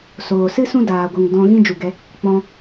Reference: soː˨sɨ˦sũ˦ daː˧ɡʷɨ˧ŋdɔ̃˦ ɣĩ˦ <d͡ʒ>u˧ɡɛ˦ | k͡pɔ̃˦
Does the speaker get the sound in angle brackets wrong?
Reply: no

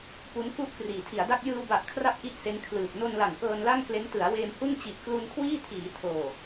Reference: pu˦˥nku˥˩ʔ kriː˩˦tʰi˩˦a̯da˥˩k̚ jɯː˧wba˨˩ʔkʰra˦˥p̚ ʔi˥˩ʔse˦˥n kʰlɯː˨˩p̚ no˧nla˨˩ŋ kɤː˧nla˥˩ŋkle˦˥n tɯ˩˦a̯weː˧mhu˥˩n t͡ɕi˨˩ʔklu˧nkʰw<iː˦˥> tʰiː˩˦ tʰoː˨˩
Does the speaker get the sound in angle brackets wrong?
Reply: yes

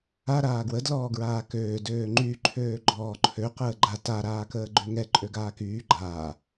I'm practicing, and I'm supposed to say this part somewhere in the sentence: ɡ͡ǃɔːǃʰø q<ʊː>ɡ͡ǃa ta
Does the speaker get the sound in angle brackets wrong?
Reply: yes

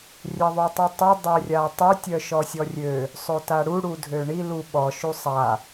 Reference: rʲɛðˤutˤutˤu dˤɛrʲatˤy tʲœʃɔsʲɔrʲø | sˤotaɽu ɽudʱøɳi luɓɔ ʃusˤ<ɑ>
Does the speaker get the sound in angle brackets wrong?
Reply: yes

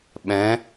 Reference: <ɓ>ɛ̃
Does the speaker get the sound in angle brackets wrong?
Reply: no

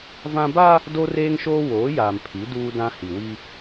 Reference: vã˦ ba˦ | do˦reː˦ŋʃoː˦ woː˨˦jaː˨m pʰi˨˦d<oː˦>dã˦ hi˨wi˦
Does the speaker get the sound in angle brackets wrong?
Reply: yes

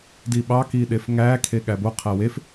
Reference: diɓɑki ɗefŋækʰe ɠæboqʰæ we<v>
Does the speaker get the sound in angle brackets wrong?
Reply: yes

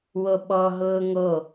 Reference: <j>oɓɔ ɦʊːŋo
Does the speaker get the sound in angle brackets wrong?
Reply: yes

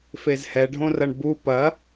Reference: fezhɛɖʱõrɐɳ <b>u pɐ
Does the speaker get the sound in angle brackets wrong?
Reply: no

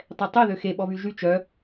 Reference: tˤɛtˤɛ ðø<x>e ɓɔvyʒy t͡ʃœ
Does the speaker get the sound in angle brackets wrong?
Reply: no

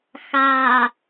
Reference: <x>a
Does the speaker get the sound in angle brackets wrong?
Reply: no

